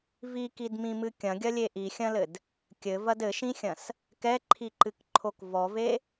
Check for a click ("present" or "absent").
present